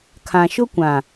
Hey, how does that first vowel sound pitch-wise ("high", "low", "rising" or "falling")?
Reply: low